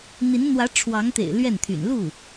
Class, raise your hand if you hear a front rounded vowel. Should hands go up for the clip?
yes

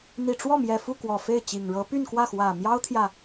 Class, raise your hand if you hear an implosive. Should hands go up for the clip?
no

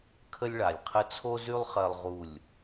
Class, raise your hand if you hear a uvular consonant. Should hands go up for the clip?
yes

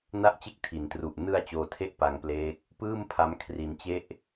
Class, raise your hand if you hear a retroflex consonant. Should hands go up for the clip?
no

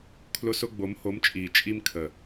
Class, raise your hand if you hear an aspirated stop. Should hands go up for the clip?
yes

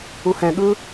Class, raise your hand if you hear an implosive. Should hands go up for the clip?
yes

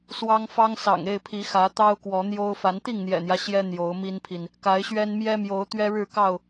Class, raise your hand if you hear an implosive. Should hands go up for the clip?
no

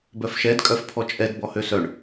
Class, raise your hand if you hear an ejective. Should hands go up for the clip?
yes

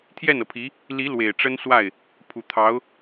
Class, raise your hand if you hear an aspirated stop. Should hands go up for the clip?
yes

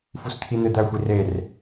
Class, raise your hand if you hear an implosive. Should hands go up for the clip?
no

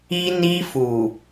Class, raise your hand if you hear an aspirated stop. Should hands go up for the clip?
no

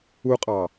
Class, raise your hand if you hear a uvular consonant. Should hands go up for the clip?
yes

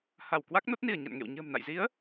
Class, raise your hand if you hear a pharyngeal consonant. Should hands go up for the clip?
no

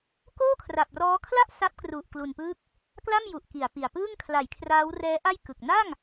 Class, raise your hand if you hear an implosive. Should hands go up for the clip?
no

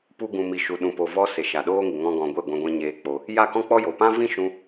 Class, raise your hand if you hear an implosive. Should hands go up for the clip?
yes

